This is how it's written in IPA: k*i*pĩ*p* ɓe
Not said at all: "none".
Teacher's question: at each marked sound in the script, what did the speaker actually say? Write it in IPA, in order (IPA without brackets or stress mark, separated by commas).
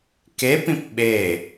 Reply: e, p